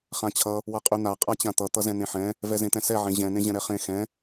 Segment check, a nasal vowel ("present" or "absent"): present